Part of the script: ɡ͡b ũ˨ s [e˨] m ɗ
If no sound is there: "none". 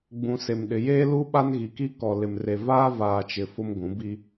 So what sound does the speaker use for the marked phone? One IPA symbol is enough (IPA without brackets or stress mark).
e˨